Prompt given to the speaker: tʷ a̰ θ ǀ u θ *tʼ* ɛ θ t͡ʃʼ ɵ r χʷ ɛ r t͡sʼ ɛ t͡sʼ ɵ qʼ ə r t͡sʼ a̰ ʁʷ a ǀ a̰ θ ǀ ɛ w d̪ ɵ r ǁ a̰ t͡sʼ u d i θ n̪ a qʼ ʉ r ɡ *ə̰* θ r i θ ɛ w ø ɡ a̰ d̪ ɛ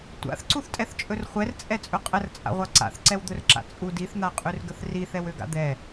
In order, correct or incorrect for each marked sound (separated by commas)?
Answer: correct, incorrect